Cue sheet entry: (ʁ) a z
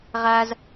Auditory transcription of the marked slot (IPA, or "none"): ʁ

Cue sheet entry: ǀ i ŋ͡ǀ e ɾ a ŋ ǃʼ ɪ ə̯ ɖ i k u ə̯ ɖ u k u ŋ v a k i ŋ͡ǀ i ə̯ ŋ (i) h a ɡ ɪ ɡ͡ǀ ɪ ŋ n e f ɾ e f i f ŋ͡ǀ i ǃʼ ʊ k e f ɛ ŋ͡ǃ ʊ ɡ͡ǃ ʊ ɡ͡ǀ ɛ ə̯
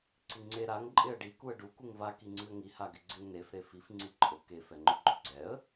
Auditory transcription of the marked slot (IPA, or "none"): i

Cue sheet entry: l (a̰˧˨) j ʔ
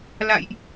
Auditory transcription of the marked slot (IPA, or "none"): a̰˧˨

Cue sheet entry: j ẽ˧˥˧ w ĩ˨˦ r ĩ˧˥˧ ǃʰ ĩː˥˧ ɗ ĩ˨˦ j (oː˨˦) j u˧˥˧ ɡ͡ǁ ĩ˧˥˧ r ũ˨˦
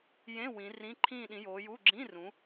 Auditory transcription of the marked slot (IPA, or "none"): oː˨˦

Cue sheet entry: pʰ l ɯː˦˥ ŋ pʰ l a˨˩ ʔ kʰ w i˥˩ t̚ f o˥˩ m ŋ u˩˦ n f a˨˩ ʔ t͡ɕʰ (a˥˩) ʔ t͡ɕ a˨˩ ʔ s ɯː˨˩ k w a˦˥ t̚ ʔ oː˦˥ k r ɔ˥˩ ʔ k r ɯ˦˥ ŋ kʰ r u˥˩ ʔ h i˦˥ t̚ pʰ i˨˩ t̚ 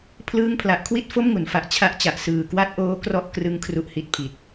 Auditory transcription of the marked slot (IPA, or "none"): a˦˥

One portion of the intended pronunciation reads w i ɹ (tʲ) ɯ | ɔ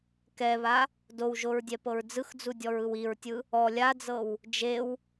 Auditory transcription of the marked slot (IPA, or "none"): tʲ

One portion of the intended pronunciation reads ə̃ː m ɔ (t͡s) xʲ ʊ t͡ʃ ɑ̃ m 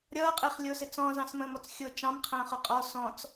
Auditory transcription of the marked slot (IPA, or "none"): t͡s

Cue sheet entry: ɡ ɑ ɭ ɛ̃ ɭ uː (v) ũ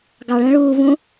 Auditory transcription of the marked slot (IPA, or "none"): v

